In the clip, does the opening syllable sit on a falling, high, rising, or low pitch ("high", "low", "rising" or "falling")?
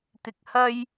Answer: low